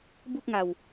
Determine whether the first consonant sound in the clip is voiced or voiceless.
voiced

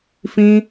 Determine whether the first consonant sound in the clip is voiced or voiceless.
voiceless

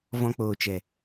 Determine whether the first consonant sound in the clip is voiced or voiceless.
voiced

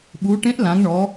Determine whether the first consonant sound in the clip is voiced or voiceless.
voiced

